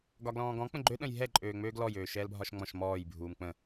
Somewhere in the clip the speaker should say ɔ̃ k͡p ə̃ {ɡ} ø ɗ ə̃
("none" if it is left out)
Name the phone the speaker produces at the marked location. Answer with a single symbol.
ɡ͡ǃ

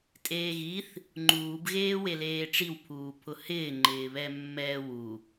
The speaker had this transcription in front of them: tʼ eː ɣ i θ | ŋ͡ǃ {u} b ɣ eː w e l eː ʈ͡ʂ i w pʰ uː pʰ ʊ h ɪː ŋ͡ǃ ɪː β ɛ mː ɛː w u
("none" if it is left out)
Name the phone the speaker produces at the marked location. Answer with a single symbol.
uː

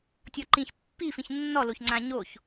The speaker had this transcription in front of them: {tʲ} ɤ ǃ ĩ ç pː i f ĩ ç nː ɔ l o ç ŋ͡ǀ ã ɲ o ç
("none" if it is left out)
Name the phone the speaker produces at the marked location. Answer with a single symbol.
tʲ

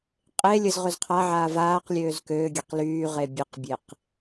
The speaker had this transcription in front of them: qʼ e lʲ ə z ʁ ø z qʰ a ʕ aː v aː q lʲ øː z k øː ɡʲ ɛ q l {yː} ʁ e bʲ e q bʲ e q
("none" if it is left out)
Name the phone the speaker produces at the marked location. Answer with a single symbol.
yː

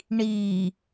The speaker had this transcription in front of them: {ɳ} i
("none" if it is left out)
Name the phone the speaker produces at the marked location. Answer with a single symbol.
ɳ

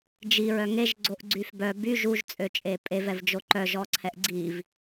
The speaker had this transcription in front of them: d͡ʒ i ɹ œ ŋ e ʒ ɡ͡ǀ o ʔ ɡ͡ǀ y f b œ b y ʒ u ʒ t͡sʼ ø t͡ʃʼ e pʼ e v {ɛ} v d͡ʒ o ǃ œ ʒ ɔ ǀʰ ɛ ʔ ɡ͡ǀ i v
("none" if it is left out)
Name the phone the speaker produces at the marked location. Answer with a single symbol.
ɛ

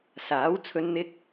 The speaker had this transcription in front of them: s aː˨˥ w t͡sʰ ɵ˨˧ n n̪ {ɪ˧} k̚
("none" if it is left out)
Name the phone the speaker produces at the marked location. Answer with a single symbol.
ɪ˧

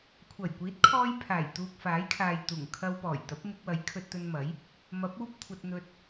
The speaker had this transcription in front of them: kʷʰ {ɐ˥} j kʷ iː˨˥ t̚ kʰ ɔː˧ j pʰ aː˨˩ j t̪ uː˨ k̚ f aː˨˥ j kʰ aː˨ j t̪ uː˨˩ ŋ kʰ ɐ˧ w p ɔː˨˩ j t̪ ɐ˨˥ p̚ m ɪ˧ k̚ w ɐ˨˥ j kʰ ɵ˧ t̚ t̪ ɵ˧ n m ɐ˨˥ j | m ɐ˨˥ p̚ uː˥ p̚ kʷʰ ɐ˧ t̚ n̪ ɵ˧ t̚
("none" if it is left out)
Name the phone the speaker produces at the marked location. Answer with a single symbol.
ɐ˨˩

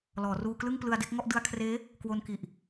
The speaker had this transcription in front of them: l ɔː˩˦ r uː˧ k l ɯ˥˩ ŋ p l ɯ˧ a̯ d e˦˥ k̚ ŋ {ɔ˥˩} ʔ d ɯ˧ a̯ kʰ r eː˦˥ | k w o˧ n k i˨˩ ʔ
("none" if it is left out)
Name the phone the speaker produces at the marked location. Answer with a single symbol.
ɔ˥˩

